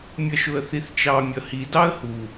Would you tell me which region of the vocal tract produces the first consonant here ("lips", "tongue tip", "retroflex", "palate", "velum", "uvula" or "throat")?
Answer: lips